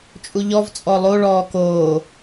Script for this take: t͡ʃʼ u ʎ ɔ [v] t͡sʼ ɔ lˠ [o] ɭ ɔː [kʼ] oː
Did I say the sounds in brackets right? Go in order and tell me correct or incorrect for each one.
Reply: correct, correct, incorrect

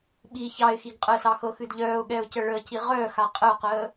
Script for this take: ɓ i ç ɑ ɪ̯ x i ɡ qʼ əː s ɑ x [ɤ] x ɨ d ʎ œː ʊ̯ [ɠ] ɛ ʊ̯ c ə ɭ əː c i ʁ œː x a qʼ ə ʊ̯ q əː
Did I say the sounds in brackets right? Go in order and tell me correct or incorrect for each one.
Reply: correct, correct

